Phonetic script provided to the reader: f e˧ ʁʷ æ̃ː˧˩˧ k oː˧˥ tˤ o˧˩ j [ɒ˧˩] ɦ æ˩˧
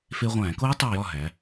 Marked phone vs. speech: correct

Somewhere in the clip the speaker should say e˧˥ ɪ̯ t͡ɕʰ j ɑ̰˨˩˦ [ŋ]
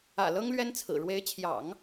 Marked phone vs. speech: correct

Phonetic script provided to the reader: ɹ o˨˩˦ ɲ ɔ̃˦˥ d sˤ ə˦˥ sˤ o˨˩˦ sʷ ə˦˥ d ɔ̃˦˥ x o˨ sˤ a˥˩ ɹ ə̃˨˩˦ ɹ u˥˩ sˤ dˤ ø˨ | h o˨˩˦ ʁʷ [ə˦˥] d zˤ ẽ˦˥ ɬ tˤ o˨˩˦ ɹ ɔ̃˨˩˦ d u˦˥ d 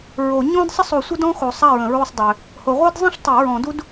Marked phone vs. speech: incorrect: œ˦˥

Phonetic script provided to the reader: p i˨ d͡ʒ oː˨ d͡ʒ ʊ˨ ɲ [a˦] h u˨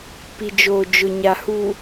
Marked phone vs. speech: incorrect: a˨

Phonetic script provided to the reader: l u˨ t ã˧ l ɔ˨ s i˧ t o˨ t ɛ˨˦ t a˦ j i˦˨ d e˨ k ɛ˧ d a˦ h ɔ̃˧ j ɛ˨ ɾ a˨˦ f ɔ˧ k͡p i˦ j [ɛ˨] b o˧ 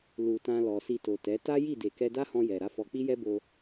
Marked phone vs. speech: incorrect: ɛ˦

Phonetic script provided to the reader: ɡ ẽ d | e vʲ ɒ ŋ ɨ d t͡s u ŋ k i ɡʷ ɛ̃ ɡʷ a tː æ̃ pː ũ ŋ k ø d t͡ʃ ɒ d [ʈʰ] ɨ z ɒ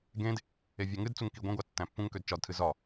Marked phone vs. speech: incorrect: tʰ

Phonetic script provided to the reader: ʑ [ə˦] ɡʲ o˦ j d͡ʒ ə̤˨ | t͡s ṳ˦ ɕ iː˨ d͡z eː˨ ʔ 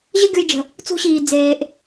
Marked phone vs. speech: correct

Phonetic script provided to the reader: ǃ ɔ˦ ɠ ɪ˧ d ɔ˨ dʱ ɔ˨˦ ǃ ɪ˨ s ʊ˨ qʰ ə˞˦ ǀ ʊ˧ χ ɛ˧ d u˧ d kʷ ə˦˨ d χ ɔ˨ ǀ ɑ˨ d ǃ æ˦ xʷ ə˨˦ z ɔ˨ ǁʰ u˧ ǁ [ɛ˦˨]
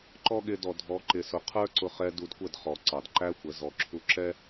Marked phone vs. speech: incorrect: ɛ˦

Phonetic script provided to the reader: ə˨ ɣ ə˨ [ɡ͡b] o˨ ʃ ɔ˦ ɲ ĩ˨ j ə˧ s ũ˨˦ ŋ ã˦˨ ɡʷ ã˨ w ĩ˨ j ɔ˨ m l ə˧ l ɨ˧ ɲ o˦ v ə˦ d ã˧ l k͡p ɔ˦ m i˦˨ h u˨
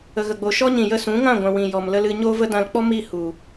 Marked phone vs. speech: correct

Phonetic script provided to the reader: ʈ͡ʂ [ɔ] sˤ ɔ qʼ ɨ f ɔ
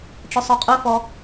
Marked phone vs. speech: correct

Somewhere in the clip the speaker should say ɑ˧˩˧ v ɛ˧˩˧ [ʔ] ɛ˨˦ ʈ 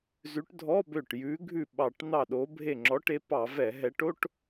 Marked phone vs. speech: incorrect: ɦ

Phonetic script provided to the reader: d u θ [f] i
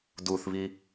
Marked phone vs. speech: incorrect: β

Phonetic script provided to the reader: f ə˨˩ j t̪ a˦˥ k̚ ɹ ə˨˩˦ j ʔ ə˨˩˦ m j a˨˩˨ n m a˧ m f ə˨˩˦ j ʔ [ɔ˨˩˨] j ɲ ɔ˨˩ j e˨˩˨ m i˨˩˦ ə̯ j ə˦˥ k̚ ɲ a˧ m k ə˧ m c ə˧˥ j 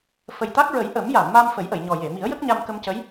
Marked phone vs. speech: incorrect: ə˨˩˨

